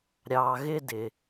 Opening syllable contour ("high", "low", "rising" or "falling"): low